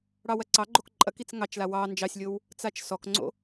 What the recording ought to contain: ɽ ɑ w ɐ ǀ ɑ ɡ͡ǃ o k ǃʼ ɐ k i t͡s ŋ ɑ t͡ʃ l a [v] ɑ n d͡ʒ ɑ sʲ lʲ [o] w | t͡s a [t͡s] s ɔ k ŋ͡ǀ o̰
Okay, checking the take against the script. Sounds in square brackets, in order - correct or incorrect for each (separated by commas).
incorrect, correct, incorrect